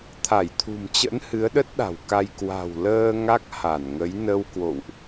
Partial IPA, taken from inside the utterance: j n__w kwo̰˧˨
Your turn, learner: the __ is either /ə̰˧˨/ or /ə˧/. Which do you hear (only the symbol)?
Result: ə˧